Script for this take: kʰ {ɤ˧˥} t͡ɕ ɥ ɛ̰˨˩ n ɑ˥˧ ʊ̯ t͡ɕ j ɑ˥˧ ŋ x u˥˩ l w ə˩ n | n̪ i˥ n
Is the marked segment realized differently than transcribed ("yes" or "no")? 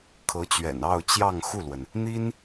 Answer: no